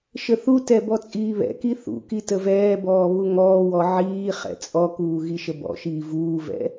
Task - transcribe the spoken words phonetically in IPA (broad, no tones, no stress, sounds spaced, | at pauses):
ʃ ə θ u t ɛ b ɔ t͡sʼ iː β ɛ̰ k i θ ṵ k i t ə v ɛː b ɔː β u ŋ ɔː w ɔ ʕ iː χ ɛ̰ t͡sʼ ɔ k uː ɣ i ʃ ə b ɔ̰ ʃ iː v uː v ɛ̰